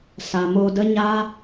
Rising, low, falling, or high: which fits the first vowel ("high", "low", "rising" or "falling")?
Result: low